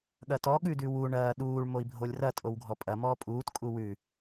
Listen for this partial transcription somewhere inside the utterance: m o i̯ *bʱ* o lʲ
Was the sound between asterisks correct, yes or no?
yes